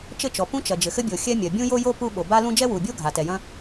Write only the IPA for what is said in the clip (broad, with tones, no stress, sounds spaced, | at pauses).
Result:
t͡ʃ ɘ˥ t͡ʃ ɔ˩ p ũ˥ t͡ʃ ɐ˩ d͡ʒ ɘ˩ x ɘ˥ bʲ o˩ xʲ ɛ˥ mʲ ɐ˩ bʲ ũ˥ j o˥ j o˥ p u˥ ɓ o˩ b a˥ l ũ˥ d͡ʒ ɛ˥ w u˩ bʲ o˥ ɡʱ a˩ t ɛ˩ j ɐ̃˥